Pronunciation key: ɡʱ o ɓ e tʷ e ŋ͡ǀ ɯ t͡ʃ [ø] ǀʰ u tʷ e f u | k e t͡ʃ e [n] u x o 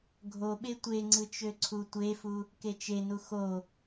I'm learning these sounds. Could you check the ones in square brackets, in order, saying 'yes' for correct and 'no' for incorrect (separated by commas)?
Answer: yes, yes